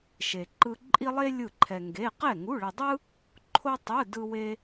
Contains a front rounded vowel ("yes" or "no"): no